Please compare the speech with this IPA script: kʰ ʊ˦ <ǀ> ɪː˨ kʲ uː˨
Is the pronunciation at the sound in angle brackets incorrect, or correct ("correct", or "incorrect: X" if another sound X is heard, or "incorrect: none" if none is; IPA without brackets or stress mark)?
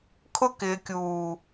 incorrect: k